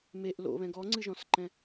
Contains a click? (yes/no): yes